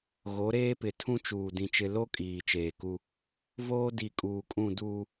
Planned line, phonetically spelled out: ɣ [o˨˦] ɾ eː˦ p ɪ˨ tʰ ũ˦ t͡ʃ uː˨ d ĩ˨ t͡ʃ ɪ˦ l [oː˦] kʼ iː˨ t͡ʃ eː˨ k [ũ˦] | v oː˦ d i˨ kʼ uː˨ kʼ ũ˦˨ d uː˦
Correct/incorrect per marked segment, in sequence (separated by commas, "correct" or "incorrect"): correct, incorrect, incorrect